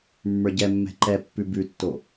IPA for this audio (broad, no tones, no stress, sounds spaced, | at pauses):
mː ə˞ ɟ ɛ mː ɛ̤ ǃ ɛ pː ʉ b ʉ tː o